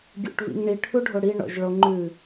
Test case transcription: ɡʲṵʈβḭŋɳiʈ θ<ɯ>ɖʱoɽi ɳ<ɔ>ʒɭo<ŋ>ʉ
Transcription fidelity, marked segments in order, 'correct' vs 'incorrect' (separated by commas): incorrect, incorrect, incorrect